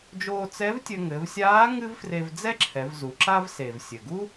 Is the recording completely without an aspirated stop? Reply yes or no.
no